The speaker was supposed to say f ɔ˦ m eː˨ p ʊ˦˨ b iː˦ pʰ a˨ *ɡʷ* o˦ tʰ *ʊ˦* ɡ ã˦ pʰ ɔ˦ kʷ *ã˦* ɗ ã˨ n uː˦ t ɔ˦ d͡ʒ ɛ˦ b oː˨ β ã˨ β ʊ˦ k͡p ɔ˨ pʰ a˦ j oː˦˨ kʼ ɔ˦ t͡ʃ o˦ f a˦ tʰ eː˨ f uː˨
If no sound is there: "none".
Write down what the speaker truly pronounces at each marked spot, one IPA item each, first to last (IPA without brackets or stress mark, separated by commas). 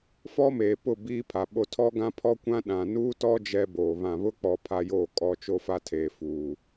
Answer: ɓ, ɔ˦, ã˦